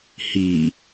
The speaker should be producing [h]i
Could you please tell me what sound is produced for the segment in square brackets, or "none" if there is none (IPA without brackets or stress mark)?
h